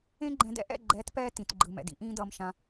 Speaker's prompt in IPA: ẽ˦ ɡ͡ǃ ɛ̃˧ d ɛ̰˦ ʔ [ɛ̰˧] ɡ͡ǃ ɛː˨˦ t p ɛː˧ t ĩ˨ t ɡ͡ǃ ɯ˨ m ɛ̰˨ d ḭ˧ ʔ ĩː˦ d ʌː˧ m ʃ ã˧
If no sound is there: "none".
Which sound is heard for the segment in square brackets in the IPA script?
ɛ̰˦˨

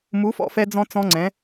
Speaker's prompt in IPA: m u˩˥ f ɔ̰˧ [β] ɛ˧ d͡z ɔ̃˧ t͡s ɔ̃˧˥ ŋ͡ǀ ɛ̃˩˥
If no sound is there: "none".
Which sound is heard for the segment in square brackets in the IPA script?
f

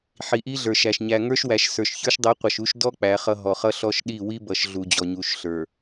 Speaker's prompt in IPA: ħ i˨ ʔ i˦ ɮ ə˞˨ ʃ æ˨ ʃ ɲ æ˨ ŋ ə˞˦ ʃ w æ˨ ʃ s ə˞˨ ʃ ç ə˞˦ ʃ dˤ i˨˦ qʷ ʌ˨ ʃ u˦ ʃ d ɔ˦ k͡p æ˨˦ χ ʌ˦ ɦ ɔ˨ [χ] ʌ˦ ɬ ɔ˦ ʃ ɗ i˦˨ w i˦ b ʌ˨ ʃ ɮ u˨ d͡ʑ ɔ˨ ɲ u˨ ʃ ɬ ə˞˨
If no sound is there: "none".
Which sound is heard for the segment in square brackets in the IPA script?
χ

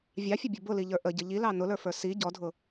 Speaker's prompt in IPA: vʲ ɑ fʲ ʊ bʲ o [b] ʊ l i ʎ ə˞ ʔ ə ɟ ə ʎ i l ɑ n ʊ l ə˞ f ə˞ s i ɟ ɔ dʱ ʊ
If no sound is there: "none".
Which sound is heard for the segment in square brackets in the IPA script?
b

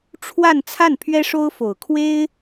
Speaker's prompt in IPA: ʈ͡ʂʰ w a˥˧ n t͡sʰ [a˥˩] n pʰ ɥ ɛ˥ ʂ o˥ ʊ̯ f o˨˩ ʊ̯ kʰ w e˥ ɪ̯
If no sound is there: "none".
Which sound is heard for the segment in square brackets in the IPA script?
a˥˩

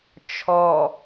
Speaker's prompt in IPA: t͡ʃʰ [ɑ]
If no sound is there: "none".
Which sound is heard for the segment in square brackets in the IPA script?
ɔ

